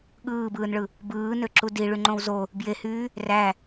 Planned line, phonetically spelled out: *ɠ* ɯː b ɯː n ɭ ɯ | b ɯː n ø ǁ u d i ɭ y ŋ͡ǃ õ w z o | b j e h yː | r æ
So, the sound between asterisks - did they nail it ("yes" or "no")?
yes